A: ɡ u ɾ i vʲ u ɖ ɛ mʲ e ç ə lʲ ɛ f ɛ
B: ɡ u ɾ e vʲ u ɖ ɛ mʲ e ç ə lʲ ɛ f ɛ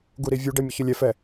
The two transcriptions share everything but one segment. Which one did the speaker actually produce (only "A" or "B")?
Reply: A